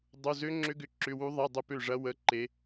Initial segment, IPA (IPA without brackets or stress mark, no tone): dˤ